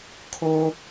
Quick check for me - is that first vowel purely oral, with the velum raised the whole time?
yes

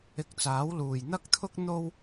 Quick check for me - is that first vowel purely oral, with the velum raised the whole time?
yes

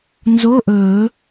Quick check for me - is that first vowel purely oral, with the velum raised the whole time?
yes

